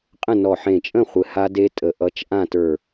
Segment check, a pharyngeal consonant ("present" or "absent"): present